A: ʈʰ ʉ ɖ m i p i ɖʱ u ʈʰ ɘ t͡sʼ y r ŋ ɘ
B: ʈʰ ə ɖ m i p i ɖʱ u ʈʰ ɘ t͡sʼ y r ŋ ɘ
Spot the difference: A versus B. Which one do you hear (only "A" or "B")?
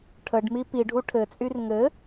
B